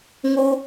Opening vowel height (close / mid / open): close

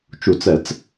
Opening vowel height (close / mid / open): close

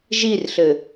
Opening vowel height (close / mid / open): close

